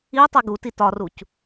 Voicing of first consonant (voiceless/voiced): voiceless